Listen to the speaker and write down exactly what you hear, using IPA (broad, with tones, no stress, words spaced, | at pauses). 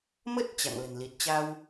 mə˦˥t̚ t͡ɕa̰˧˨ŋlə̤˨˩nli˨˩t̚ t͡ɕa˧w